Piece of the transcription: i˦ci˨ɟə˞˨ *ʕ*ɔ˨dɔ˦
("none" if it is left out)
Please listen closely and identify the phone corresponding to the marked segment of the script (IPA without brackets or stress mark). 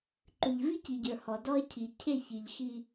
h